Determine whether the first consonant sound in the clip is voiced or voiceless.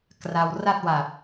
voiceless